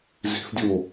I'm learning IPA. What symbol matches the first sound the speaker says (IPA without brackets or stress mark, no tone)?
z